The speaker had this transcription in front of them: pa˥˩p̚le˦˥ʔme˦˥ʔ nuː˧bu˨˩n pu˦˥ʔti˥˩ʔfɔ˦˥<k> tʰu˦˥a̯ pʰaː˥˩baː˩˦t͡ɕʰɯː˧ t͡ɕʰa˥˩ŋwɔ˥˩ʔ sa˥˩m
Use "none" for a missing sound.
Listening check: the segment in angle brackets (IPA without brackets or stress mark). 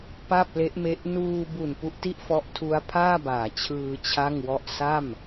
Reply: ʔ